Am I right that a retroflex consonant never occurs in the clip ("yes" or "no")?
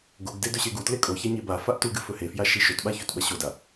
yes